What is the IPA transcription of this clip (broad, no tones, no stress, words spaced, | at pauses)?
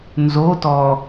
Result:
nzotɔː